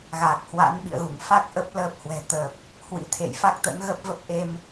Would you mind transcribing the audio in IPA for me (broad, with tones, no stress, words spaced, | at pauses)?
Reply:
ɣaː˨˩k̚hwa̰˧˥nɓḭ˧˨ə̯ɣu˧˩ŋ fa˦˥k̚ ʔə˦˥p̚ ləː˦˥p̚hwɛ̤˨˩t̪ə˨˩p̚ | hwḭ˧˥t̪ʰḛ˧˨j fa˦˥k̚t̪ə̰˧˥nɣə˦˥p̚ və˦˥p̚ʔe˧m